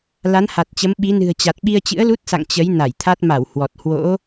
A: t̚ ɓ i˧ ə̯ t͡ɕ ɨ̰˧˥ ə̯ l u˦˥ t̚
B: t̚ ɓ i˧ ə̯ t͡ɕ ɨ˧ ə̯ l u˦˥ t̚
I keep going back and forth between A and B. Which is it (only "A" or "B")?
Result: A